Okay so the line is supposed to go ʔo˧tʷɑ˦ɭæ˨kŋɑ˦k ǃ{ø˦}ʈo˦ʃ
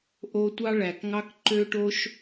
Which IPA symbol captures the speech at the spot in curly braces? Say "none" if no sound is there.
ø˦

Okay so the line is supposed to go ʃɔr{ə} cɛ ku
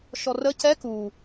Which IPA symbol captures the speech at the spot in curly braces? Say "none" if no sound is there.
ə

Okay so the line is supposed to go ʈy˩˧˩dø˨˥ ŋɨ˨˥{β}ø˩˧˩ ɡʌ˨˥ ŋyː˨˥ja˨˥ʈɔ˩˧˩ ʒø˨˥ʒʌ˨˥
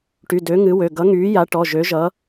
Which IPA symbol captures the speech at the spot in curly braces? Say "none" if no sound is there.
w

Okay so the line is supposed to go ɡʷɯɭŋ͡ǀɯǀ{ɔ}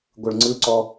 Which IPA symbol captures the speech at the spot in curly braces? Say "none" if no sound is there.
ɔ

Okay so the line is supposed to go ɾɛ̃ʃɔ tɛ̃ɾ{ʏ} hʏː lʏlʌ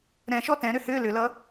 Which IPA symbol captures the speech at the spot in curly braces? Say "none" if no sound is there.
ʏ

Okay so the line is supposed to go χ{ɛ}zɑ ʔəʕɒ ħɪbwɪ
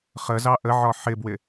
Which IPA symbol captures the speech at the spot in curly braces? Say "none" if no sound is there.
ə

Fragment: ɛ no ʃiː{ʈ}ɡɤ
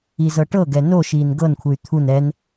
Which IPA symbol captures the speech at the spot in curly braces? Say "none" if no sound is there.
n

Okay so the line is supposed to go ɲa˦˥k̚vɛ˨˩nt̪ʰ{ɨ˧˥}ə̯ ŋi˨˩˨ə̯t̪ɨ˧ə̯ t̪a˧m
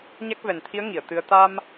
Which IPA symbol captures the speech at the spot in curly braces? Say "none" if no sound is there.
i˧˥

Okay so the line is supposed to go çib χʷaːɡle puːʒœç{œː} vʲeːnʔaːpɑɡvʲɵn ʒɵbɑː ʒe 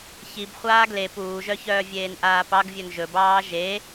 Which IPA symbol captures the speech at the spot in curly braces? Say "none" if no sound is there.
œː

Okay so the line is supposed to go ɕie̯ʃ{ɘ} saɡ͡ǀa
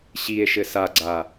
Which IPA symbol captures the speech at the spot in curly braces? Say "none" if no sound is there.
ɘ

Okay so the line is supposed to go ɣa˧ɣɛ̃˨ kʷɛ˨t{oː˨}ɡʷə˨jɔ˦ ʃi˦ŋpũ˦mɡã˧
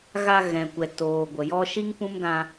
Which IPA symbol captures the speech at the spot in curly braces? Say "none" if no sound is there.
oː˨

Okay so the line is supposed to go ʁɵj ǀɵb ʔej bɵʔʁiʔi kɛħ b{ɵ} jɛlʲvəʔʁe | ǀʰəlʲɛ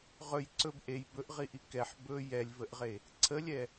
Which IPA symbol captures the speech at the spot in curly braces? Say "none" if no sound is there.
ɵ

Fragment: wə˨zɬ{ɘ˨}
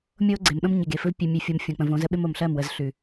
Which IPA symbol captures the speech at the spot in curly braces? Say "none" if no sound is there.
ʉ˨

